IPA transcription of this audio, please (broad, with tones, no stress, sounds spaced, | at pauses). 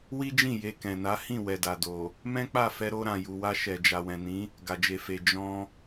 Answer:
w i˦ d͡ʒ ĩ˦˨ j e˧ k ɛ̃˨ n a˨˦ h ĩ˦˨ w ɛ˨ d a˨ d o˨ | m ɛ̃˦ k͡p a˦˨ f ɛ˧ ɾ o˧ ɾ ã˨ j u˨ w a˧ ʃ ɛ˨ d͡ʒ a˨ w ɛ̃˨ n ĩ˨˦ | ɡ a˨ d͡ʒ e˨ f e˨ d͡ʒ ɔ̃˧